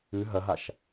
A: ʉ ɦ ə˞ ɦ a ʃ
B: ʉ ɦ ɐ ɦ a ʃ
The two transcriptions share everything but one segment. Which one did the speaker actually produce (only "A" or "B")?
B